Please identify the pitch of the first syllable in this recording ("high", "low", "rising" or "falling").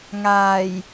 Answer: low